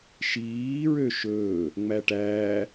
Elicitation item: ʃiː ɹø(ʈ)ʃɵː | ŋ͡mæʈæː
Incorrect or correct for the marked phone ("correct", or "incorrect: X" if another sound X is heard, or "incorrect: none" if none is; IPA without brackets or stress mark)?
incorrect: none